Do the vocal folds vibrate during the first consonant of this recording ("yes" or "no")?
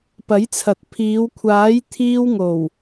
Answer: no